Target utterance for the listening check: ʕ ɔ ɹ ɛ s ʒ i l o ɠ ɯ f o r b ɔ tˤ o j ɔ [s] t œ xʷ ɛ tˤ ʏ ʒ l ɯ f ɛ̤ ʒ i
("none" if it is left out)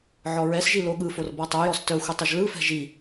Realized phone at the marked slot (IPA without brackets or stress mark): s